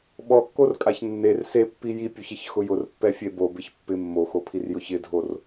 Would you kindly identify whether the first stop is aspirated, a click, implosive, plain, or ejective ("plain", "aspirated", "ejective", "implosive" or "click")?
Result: implosive